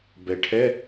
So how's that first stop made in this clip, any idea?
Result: plain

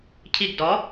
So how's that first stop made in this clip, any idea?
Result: aspirated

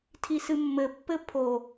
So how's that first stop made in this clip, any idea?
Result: aspirated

